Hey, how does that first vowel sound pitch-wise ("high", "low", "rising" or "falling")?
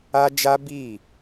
high